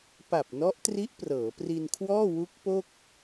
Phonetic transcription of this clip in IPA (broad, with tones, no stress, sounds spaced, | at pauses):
p a˨˩ p̚ n ɔ˦˥ ʔ t r i˦˥ ʔ p r ɤː˩˦ p r i˧ n kʰ w ɔː˥˩ w u˦˥ k̚ p o˥˩ k̚